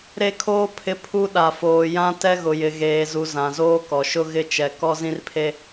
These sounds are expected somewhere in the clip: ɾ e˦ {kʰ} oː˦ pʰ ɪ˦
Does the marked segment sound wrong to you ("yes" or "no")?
no